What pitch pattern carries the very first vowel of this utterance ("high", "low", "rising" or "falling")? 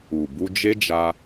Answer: low